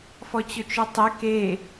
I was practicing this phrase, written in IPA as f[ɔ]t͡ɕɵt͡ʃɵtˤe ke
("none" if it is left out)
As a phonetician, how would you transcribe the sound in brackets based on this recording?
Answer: ɔ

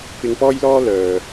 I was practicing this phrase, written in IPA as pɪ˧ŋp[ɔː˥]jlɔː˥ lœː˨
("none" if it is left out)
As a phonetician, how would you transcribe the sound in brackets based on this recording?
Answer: ɔː˥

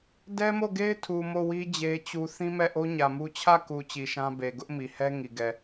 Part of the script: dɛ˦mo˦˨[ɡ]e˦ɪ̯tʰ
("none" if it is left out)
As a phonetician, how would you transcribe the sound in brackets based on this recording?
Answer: ɡ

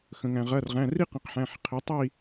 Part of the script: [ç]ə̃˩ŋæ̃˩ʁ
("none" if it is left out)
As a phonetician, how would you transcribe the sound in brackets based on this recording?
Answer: x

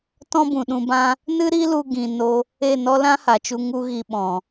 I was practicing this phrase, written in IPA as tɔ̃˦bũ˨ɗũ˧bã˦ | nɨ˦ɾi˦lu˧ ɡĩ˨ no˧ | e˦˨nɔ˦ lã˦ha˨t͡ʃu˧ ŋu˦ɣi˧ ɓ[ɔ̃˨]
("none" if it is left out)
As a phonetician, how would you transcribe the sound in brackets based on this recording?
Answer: ɔ̃˨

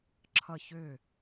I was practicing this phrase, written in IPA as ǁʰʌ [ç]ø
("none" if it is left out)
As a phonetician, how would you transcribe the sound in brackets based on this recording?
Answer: ç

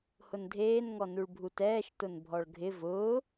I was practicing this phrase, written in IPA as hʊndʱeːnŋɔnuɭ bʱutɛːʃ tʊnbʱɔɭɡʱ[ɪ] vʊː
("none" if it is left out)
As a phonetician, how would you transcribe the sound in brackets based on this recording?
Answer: ɪ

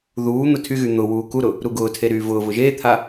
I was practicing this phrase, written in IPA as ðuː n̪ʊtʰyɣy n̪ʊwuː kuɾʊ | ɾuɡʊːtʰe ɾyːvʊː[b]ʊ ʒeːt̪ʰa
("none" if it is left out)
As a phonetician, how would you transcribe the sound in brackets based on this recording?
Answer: v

